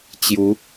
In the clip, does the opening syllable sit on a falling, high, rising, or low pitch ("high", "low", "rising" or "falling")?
rising